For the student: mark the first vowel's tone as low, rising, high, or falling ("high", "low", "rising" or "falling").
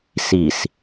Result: low